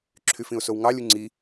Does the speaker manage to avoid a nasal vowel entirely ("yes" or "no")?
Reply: no